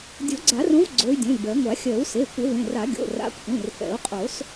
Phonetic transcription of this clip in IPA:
dʲ o˨˩˦ ɡ͡ǀ a˨˩˦ r õ˨˦ v ɡ͡ǀ o˨˦ y̯ dʲ õ˩˧˩ lʲ b ɜ˨˩˦ ŋʷ a˨˩˦ xʲ ɜ˨˩˦ u̯ s e˩˧˩ kʷ ə˨˩˦ v ẽ˩˧˩ r a˨˩˦ ɡʲ o̰˩˧˩ r a̰˨˦ kʷʰ ẽ˩˧˩ r f ɛ̰˨˩˦ u̯ qʼ o˨˩˦ s

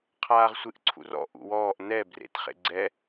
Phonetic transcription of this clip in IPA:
qʰ aː ʁ sʷ ɨ ʔ ǀʰ ṵ r ɔ̰ ʔ ṵ w ɔː ʔ n ɛ b r ḛ t χ ḛ ɡ͡ǀ ɛ

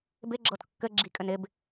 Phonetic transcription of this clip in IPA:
b ɪ ɡ͡ǁ ɤ t kː ɘ ɡ͡ǁ i kʼ ɘ n ɪ b

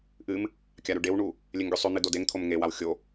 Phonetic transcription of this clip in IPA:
ʔ ɨ m | kʲ a ɾ ʉ ɖ e w ɳ u | lʲ e ŋ ɡʲ u sˤ ʉ n̪ ɨ d o d e ŋ t̪ʰ o m ŋ e w a w xʲ o

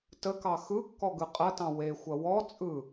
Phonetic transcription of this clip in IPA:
t ə k ɑ x ɯ kː ɔ ɡ ɯ qʼ ɐ t ɑ̃ w e xʷ ɐ w ɔ t͡sʼ ɯ

